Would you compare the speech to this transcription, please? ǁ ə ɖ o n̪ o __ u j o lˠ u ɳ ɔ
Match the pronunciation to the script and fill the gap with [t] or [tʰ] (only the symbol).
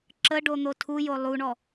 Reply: tʰ